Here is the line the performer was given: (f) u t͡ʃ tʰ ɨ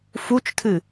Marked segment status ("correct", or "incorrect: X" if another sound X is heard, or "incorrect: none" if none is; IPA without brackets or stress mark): correct